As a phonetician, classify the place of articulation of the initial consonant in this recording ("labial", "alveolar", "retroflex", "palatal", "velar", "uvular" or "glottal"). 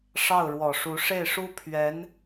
retroflex